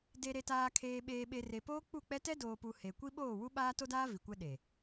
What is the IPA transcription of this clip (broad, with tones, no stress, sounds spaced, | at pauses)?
d e˨ ɾ e˨ t aː˨ kʰ eː˨ ɓ eː˨ ɓ e˨ r e˨ p oː˦ k͡p u˦˨ k͡p ɛ˦ t ɛ˦ d oː˨ p u˨ h e˨ kʷ i˦ ɓ oː˦˨ w u˦ ɓ aː˦ t o˦ d aː˦ v i˨ kʷ ɛ˦ ɗ e˨